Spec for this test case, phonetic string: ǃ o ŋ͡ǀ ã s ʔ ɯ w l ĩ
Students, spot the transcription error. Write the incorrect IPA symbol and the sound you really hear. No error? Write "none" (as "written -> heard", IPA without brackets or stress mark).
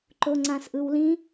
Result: none